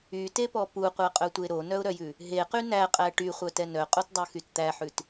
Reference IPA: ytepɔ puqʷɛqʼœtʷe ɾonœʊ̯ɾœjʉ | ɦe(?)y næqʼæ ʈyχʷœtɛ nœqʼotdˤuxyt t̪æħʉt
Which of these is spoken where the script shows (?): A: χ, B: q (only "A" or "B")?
B